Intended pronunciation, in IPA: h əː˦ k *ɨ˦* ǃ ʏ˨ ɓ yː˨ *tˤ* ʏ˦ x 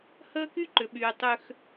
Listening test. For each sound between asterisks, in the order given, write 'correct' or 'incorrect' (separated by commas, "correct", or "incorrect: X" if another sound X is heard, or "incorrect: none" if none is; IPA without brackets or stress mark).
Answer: incorrect: y˦, correct